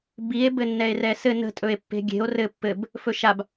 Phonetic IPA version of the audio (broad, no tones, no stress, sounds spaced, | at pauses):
b i e̯ b ɘ nː ɛ e̯ r ɛ s ɘ n ə̤ tʼ ɵ e̯ pː e̤ ɡʲ e̤ o̯ r ɘ pː ɘ b | f ɵ ʃ a b